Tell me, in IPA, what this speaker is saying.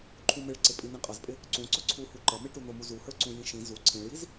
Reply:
ǃʰũmɪɭǀɪ pʼinĩqʼʌzpʼɪ | ǀũ ǀʊǀʰuhu ǃʌmiʈu nʊmu zuhə˞ǀũ jĩʃĩ zu ǀʰĩɭjiz

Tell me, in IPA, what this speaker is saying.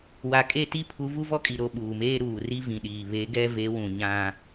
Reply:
wa˨kʼe˦˨ti˦ pʰu˨˦vu˦vɔ˦kʼi˨ ɾo˦˨ɓuː˨meː˦ ɾuː˨ri˦vĩ˨ɗiː˨ βe˨˦ɡɛ˦ve˨˦wũ˨ ɲã˦

